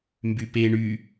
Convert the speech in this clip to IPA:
m b y p e ɳ y

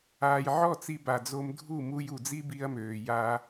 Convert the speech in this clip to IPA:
aː˨ j ʕ ɔ˦˨ t͡s i˧ b a˨ d͡z o˧ m dʱ u˦˨ m u˧ j u˨ d͡z i˦ b i˧ ɐ̯ m øː˨ j aː˧

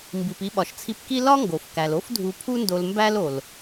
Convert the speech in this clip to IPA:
m b i˩ p i˧ ɓ ɒ˩ ʃ t͡sʰ i˧ p k i˥ l ɒ˥ ŋ ɡ o˩ f k æ˩ l o˥ f dʱ u˧ pʰ u˥ n d o˧ l m b æ˥ l o˩ l

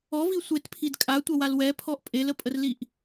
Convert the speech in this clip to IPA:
ɔ v i sʷ e t pʰ i d kʼ a tʷ ɐ w a l w ɛ pʰ ɔ ʔ pʼ e l ə pʼ ə r l i ʔ

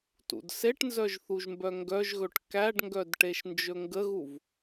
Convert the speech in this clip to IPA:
t ṵ d s e ʈ n z œ ʒ θ u ʒ m b œ ŋ ɡ œ ʒ ɣ ɵ ʈ k æ ɖ ŋ ɡ œ d ʈ e ʃ n d͡ʒ ɵ ŋ ɡ ə ɣ u v

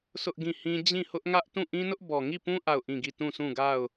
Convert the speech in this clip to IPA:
s ʊ˦ ʔ ɡ ĩ˦˨ h ĩ˦ d͡ʑ ĩ˦˨ h ʊ˦ ʔ ŋ ä˦ ʔ t ũ˦˨ ʔ ĩ˦ n ʊ˦ ʔ b ɔ˨ ŋ i˦˨ p ũ˦ ʔ a˦˨ ʊ̯ ʔ ĩ˦˨ ɡ i˦˨ t ũ˦˨ s ũ˦˨ ɡ a˦˨ ʊ̯

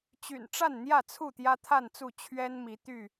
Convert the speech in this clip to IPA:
t͡ɕ y̰˨˩ n ʈ͡ʂ a˥˨ n n̪ j ä˥˨ t͡sʰ u˥˨ t̪ j ä˦ t̪ʰ a˥˨ n t͡s u˥˨ t͡ɕʰ ɥ ɛ˦ n m i˨˦ t̪ y˥˨

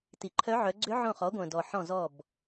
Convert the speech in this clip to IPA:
t i˩ ǃʰ œ˧˥ ʕ œ˩˧ ɡ͡ǀ ʏ˧˥ ʕ õ˧˩ χ ɔ˩˧ ɡʷ œ̃˩ d ɔ˩ ħ ɔ̃˧˩ z ɔ˧˩ b

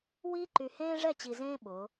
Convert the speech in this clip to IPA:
w iː˦ ǃ y˨ h ẽː˦ ʐ ɛ˦˨ t͡ɕ i˨ z ẽː˦ ɓ ʊː˨˦

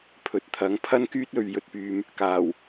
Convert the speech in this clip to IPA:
pʰ ɵ˨ t̚ t̪ʰ ɐ˨˥ ŋ pʰ ɐ˥ n k yː˥ t̚ ɵ˨ ɥ j ɵ˨ t̚ p yː˨ m | k aː˨˩ w

